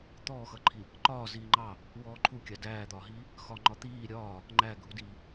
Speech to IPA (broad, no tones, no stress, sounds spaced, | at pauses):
t̪ ɔː x ʌ ǃʰ i | ǃ ɒː z iː ŋ͡ǃ ɑ | w ɔː ǃʰ u kʲ ɑ d æː d̪ ɒː ɦ iː | x ɒ ŋ͡ǃ ɒ t̪ iː ɾʲ ɒː | ŋ͡ǃ æ ɡʱ u d iː